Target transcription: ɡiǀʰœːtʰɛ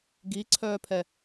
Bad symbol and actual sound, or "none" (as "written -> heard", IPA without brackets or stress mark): tʰ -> pʰ